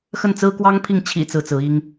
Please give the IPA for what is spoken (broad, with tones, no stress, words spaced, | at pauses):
xə˥˩nt͡sɹ̩˥kwɑ˥ŋ pʰi˥˩ŋ t͡ɕʰḭ˨˩ t͡sɹ̩˥˩t͡sɹ̩˧˥i˥ŋ